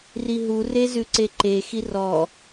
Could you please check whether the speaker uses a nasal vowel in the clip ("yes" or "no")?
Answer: no